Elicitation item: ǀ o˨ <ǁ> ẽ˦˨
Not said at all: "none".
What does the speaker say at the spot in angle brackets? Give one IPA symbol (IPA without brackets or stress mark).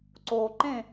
ǃ